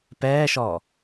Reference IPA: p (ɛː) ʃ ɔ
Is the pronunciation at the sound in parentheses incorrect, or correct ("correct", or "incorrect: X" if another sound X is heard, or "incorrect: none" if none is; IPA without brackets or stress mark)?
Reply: correct